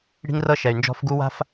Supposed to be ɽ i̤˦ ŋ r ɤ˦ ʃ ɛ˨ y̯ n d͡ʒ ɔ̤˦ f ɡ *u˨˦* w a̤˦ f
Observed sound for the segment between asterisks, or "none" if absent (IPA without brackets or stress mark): u˦